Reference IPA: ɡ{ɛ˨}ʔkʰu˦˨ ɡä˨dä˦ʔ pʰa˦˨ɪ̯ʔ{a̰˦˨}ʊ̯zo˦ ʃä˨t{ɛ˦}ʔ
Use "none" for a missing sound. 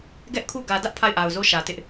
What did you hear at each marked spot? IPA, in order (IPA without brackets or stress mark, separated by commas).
ɛ˦, a˨, ɪ˦